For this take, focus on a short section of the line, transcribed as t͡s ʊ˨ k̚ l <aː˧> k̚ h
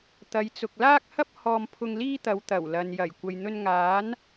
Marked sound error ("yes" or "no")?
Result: yes